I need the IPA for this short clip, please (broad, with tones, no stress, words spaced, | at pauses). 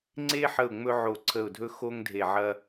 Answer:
ŋ͡ǀe˥ħə˦˨ʊ̯ ŋ͡mɵ˥ʕo˦˨ǀʰə˦˨ʊ̯dʱɵ˥ xo˥ŋdʱe˦˨ʕɐ˥